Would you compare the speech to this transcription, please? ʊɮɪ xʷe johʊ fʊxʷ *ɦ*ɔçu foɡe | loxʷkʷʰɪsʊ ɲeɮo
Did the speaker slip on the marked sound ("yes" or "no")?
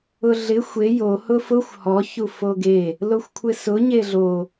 yes